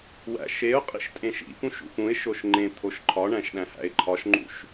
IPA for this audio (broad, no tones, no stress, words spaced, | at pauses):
wæ̰ʃeʊ̯qʼḭʃ tʼẽʃḭpũʃ ṵpũɪ̯ʃoʃ ŋ͡ǃẽ t̪ʰoʃǃʰɒɳæ̃ʃ ɗæ̃hæ̰ɪ̯ǃʰɒʃŋ͡ǃṵʃ